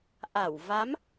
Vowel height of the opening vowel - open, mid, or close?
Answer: open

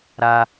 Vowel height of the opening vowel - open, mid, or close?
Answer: open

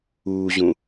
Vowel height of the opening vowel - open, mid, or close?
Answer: close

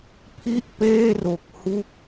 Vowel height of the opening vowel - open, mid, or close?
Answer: close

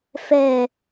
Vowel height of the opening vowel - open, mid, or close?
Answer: mid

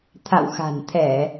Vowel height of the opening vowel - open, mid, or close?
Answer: open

